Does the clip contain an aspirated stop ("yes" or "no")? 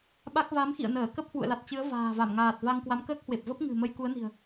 no